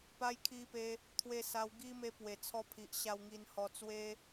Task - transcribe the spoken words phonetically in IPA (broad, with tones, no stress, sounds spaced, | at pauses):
p a˧ j kʰ i˧ p e˧ | t̪ʰ w e˧ s a˧ w ɡ i˦ m e˧ p w e˨˩ t͡sʰ ɔ˧ pʰ i˨ ʔ ɕ a˧ w ŋ i˧ n h ɔ˧ t͡s w e˦